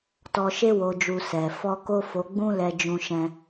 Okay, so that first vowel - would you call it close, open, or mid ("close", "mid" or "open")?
mid